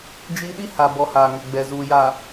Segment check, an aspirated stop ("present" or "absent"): absent